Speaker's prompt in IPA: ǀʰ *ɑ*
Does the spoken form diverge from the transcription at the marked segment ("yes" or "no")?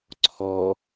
yes